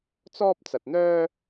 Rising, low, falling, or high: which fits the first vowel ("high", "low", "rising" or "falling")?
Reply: high